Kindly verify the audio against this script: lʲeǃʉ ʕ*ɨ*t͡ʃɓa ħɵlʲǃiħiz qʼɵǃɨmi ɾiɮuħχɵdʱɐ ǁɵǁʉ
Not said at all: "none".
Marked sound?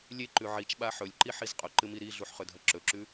i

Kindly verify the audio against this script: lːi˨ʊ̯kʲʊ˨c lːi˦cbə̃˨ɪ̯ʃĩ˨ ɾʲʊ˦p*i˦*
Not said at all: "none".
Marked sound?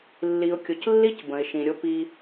i˦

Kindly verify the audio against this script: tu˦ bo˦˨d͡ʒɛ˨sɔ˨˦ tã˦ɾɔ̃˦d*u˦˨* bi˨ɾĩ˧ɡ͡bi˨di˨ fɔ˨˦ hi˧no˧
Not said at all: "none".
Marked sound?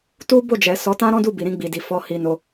u˦˨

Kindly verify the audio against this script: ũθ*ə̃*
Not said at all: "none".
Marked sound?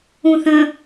ə̃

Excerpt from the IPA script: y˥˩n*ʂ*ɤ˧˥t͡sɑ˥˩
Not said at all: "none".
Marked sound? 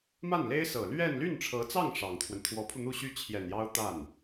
ʈ͡ʂʰ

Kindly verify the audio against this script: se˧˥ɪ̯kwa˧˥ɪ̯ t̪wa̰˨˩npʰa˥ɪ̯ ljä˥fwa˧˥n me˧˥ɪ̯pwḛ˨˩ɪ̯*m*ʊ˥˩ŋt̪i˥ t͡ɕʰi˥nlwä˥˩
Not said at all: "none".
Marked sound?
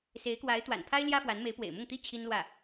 m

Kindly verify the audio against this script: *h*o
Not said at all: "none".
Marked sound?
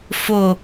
f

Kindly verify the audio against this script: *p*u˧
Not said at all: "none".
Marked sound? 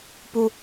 p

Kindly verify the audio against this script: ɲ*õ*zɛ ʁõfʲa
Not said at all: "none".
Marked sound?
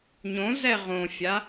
õ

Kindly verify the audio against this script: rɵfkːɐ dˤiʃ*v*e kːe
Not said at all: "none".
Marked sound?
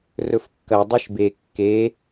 b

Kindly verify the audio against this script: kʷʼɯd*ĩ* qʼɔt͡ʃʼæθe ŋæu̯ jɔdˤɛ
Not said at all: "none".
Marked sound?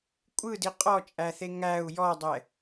i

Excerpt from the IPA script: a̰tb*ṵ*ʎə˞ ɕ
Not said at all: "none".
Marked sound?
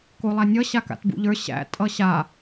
ṵ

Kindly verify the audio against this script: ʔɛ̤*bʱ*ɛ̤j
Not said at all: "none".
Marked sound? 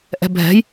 bʱ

